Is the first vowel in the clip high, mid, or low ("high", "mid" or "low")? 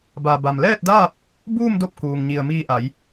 low